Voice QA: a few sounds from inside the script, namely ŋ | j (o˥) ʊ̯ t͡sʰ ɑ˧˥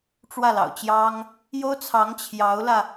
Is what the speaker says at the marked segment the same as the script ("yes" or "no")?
yes